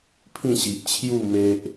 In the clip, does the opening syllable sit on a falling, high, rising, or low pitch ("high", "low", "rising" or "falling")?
falling